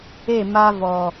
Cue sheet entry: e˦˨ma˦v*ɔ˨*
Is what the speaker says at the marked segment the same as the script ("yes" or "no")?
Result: yes